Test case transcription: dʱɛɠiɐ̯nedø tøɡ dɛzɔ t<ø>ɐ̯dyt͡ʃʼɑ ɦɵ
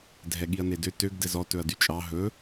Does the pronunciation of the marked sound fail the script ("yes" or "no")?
yes